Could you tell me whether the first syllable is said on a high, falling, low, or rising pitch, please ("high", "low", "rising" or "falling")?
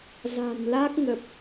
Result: low